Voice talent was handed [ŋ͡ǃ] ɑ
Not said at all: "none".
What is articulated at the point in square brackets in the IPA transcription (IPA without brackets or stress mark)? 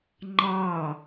ŋ͡ǃ